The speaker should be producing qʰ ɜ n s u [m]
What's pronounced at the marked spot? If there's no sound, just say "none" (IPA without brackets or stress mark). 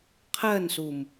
m